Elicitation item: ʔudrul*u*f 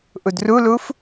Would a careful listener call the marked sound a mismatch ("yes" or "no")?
no